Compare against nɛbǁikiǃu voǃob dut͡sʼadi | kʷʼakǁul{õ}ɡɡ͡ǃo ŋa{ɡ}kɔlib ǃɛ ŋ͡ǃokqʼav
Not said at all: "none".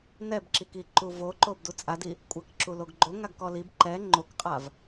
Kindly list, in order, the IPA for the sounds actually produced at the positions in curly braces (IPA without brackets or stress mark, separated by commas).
o, ɡ